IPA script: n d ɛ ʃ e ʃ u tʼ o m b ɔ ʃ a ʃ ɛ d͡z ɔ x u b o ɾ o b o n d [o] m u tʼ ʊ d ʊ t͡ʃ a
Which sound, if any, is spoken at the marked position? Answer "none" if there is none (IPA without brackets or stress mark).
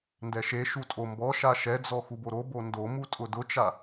o